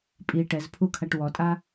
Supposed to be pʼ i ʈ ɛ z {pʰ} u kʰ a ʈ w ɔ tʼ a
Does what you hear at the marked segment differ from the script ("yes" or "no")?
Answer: no